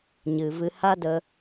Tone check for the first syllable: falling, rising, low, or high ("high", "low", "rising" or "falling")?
low